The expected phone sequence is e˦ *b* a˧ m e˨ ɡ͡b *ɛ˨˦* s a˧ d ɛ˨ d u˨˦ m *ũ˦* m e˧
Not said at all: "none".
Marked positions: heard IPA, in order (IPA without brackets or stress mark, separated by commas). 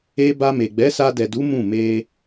b, ɛ˨˦, ũ˦˨